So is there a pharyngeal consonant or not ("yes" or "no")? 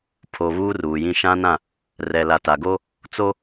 no